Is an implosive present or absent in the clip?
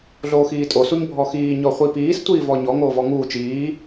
absent